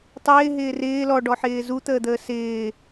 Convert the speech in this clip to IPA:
tˤ ɪː ɦ ɪː r ɪː l ɔ ɖ ɔ ħ ɪː z u t̪ əː d̪ əː s ɪː

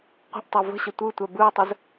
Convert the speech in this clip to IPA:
qʷ ə̤ ʔ tˤ ɛ v ə̤ ɕ ə tʷ ɯ tʷ ɛ b ɯ w tˤ ə z

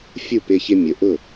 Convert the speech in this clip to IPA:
fʲ u˦˨ p ɪ˧ ç ɪ˧ mʲ ʊ˨ ʔ ʊ˦˨

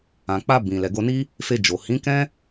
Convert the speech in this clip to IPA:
ã˨ k͡p a˧ b ĩ˨ l ɛ˨ ɡ o˧ n i˦ | f e˧ d͡ʒ o˨ h ĩ˨˦ k ɛ̃˦

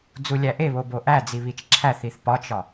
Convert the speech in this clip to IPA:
d͡z u lʲ æ ʔ e β o b o ʔ æ d͡z i β i t͡ʃ ǁʰ æ θ i θ p ɒ t͡ʃ ɒ

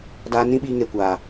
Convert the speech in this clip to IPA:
d aː˧ n ĩ˦ ɓ iː˧ ŋ e˨ kʷ aː˨

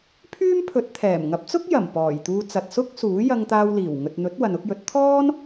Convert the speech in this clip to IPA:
pʰ yː˥ m pʰ ɵ˨˥ t̚ t̪ʰ ɛː˨˩ m ŋ ɐ˨˥ p̚ t͡s ʊ˥ k̚ j ɐ˨˩ m p ɔː˨˩ j t̪ uː˧ t͡s ɐ˨ t̚ s ʊ˥ k̚ s uː˨˥ j ɐ˧ ŋ t̪ aː˧ w l iː˨˩ w ŋ ɵ˨ t̚ n̪ ɵ˨˥ t̚ w ɐ˨ n ʊ˨˥ k̚ j ɵ˨˥ t̚ t̪ʰ ɔː˥ n

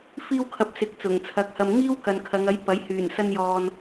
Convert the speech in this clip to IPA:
f iː˥ w kʰ ɐ˧ p̚ s ɪ˨ k̚ t͡s ʊ˨˩ ŋ t͡sʰ ɐ˨˥ k̚ h ɐ˧ m ŋ iː˥ w k ɐ˨ n kʰ ɐ˨˧ ŋ ɐ˨˥ j p ɐ˨˥ j h yː˨˩ n s ɐ˧ n j ɔː˨ n

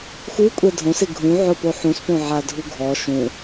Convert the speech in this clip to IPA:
x u kʷʼ ɛ dʱ õ s ɪ ɡʱ ũ ʕ ʊ p o ħ ũ s p õ ʕ a dʱ u ɡʱ ɔ ʃ ũ

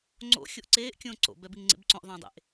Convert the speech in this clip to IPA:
ŋ͡ǀ o̰ xʲ o ʔ ǀ eː ʔ kʲ õː ǀ o̰ b ɛ b i ŋ ŋ͡ǀ ḛ b ǀ õ ʔ ðˤ ə̃ː dˤ ḛ ʔ

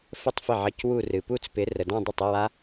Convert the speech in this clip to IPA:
f ə˥˩ tˤ f ɪ˥˩ ʕ ə˧˥˧ c w u˥˧ r ɨ˨ p u˥˧ t͡s p ɪ˨˥ r ə˨ d ã˥˧ dˤ ɪ˥˩ tˤ ɪ˧˥˧ w a˦˥

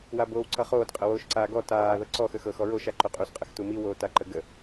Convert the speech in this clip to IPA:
w a b oː w ǀ ʌ χ oː d qʼ ə w oː ʃ ǀ aː ɡ ɔ t aː ð ɤ ǀ ɔ x ə x ɤ x ɔ ɹ o ʃ a ǃ ɵ qʼ u s qʼ ə x t u m i w oː t a ǃ ə ɡ ə

